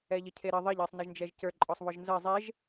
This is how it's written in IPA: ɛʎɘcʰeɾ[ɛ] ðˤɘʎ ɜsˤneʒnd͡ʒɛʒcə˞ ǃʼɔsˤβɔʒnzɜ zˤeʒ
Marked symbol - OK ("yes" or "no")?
no